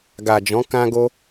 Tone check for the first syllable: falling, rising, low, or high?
low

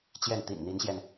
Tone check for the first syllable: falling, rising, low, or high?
falling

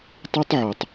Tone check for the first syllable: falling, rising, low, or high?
high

